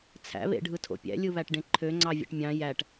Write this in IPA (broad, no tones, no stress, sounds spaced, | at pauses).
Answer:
t͡sʰ æ̰ β ḛ ɖʱ ɯ tʰ o̰ pʲ æ̰ lʲ ɯ β æ ʈ ɖ ẽ ǃʰ ø ŋ͡ǀ ɑ vʲ ḛ ʈ mʲ ɑ̃ j æ ʈ